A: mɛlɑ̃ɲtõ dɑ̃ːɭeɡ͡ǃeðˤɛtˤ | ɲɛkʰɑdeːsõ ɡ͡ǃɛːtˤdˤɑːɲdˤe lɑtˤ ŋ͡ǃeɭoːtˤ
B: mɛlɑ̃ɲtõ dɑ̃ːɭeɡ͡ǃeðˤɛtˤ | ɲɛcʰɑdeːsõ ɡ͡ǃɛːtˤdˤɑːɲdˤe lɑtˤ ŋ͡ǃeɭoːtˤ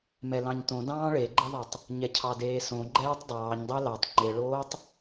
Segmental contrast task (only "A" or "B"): B